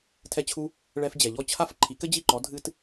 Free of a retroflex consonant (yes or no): no